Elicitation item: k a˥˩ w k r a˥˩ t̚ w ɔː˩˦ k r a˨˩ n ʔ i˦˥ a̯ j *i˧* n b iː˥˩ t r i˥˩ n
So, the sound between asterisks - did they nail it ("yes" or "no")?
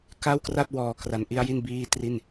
no